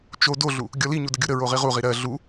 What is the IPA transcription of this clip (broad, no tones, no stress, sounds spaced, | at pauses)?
t͡ʃ o d o ɮ u | ɡʲ ɔ l i ɲ u d ə ɡʲ u ɾ ə ɹ o ʁ i ʁ u ʁ i ɾ ɜ ɮ u